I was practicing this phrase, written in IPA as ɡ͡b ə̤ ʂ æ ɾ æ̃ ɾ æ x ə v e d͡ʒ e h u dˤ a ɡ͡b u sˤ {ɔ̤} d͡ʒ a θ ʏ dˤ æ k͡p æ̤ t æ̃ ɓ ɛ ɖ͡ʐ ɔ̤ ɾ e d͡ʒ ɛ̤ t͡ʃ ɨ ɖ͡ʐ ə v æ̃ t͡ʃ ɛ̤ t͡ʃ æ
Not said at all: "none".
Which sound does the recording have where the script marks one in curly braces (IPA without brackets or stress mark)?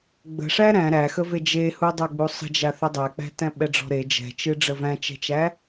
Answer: ə̤